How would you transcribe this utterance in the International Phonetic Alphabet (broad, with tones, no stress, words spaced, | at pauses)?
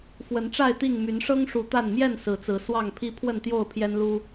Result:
fwə˨˦nʈ͡ʂa˥˨ɪ̯t̪i˥˨ŋ my˨˦nʂɤ˦ŋʂu˨˦ t̪a˥˨n mjɛ˥˨nsɹ̩˨˦t͡sɹ̩˨˦ swɑ˥˨ŋpʰi˦ pʰwə˥˨nt̪jo˥˨ʊ̯pʰjɛ˦nlu˦